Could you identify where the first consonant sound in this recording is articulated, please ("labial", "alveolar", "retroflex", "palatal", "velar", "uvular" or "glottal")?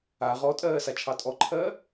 uvular